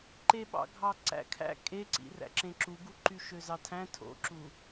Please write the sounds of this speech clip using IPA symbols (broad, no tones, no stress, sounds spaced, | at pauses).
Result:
ǃ e ɓ ɑ̰ ɡʱ ɑ ǀ æ̰ kʰ æ̰ kʼ e ǀ ḭ r æ̰ ǁ ẽ ǁ u ɡ u ǃ y ʃ ø z ɑ tʰ æ̃ tʰ o̰ ǁ u